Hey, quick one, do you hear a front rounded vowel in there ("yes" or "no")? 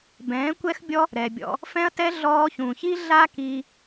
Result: no